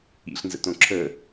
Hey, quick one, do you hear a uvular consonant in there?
no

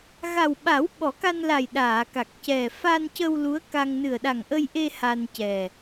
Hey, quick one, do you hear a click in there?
no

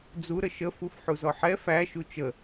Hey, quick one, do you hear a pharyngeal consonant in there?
yes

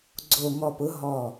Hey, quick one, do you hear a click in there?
yes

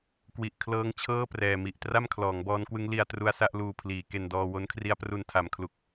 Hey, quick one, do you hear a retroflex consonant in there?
no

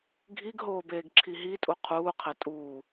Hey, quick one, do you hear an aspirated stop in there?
yes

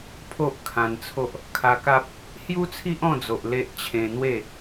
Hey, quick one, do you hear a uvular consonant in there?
no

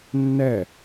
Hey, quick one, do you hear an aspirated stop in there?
no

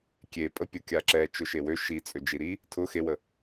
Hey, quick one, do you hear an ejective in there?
yes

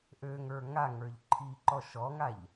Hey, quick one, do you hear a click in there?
yes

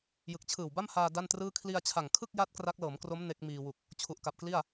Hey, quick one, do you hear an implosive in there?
no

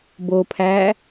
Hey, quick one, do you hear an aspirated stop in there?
yes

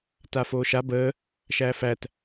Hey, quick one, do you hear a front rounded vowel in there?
no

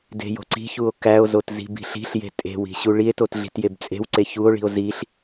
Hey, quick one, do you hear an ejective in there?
yes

